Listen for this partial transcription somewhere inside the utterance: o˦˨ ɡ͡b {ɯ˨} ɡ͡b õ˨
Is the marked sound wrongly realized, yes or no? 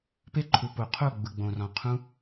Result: no